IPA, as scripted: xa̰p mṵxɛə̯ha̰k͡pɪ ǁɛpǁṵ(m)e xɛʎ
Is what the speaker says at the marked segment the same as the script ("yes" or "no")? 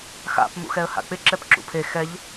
no